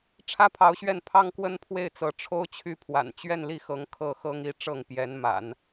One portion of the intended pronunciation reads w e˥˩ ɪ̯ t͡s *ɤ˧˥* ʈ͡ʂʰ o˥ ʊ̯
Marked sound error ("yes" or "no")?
no